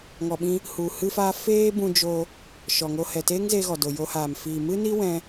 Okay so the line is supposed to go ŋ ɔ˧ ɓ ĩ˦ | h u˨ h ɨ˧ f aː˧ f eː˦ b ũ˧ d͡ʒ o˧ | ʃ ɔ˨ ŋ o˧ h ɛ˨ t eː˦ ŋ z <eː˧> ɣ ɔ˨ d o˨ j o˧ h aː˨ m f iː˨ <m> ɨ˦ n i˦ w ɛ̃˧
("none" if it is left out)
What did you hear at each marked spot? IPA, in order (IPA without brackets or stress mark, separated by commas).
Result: eː˧, m